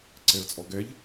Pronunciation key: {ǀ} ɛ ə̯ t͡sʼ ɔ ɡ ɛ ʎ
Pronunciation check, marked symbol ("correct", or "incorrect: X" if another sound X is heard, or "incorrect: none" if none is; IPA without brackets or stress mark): correct